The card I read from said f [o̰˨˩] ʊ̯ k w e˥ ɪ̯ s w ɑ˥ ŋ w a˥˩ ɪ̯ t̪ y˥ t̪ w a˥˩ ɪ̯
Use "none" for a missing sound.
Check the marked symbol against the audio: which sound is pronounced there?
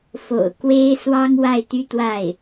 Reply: o̰˨˩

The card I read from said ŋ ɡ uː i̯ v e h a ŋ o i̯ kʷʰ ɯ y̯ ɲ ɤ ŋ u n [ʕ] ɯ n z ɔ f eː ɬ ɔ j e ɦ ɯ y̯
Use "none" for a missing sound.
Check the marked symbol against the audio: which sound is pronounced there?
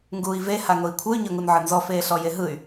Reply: ʕ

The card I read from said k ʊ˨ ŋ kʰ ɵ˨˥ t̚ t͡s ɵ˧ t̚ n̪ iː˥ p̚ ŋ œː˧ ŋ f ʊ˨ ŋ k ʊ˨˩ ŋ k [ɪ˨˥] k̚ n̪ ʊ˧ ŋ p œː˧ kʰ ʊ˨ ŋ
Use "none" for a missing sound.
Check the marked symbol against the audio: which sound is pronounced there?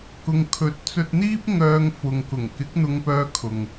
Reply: ɪ˨˥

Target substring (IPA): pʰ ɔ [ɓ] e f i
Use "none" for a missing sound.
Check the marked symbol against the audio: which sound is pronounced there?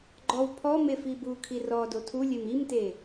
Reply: m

